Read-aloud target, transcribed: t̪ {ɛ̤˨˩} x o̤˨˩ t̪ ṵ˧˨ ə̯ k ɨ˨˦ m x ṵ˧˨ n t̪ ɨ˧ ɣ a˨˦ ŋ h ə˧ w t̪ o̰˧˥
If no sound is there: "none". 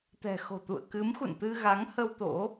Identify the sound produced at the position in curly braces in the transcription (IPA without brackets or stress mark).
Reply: ɛ̤˨˩